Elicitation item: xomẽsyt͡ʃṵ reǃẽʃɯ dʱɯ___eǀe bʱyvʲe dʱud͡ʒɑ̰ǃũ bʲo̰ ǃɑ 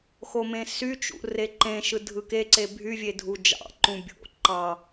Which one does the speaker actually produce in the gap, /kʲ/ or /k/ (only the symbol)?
k